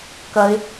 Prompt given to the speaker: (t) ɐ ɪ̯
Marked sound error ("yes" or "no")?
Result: yes